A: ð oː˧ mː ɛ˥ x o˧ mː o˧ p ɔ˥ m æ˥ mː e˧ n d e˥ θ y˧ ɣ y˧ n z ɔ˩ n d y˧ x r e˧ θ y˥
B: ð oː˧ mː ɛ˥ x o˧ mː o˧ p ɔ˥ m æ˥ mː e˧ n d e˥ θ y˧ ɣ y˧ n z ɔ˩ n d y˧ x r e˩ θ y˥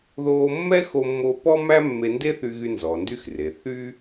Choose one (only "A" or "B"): B